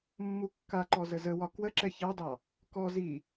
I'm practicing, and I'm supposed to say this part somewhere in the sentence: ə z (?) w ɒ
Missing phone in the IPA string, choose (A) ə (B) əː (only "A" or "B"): A